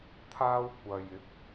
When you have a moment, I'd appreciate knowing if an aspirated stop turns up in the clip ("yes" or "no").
yes